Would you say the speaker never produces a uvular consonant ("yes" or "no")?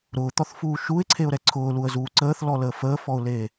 yes